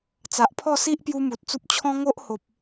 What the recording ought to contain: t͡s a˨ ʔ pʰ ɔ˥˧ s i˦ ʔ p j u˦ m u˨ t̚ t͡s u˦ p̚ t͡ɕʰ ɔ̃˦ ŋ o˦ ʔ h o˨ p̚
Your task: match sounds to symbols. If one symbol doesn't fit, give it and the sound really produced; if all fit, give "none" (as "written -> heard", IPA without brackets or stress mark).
none